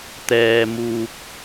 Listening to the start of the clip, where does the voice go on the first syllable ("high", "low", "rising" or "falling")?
high